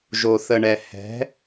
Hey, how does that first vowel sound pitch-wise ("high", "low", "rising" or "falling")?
low